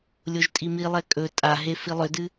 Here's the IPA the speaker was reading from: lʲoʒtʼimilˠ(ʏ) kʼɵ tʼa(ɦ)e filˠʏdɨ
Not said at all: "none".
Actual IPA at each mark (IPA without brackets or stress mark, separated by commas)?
ɛ, ɦ